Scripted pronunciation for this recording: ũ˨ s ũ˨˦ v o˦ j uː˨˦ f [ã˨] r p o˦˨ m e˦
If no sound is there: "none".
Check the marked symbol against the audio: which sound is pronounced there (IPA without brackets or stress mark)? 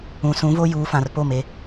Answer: ã˨